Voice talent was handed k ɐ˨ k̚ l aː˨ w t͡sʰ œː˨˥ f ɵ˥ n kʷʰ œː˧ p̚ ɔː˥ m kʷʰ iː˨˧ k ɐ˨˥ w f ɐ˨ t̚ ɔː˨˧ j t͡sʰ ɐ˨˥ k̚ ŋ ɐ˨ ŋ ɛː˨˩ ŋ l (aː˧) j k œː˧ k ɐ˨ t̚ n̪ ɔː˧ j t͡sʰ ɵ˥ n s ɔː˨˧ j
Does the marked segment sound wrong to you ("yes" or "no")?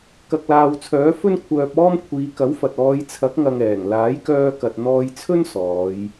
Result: yes